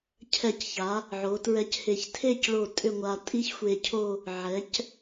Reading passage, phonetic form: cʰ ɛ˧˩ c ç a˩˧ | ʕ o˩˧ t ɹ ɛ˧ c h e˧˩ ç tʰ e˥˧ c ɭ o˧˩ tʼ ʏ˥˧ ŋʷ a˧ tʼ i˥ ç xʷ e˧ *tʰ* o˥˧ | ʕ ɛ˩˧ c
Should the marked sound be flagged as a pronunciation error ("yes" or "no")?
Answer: yes